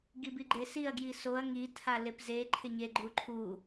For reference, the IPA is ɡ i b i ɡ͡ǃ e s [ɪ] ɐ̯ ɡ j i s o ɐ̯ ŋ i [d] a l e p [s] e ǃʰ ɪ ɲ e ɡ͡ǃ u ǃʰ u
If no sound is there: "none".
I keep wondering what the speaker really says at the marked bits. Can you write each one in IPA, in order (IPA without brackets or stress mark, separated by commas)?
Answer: i, tʰ, z